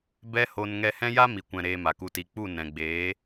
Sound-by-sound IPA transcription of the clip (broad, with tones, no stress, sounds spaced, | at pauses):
b ɛ˦ h o˧ n ŋ ɛ˧ h ɛ̃˦ j a˦ m i˨ kʷ ɛ̃˨ ɾ eː˧ m a˨ k u˧ t i˨˦ k͡p u˦˨ n ɛ̃˨ ɡ͡b eː˨˦